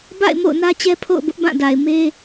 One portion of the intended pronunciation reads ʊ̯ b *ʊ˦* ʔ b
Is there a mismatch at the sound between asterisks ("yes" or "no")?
no